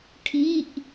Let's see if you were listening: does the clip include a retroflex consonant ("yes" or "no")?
yes